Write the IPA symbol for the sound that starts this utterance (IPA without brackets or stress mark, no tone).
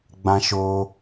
ɡ͡b